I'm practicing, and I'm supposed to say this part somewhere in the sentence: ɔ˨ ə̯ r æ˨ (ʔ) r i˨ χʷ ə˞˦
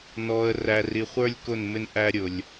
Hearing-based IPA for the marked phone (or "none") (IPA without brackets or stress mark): none